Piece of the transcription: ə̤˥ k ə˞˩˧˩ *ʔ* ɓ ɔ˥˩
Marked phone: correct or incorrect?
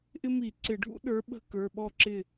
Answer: incorrect